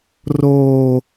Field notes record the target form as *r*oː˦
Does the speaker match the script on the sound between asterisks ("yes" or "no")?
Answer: yes